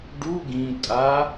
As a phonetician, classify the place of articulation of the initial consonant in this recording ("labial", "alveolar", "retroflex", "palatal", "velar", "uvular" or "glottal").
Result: retroflex